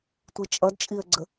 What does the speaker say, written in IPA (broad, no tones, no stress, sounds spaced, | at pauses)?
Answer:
tʷ i t͡ʃʼ ʌ d t͡ʃʼ i ə̯ ɡ͡ǀ ə